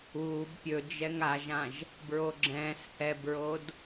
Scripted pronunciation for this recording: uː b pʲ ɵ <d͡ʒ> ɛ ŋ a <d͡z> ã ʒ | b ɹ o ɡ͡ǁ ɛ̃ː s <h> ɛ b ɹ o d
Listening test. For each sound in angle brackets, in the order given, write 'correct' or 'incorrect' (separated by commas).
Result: correct, incorrect, correct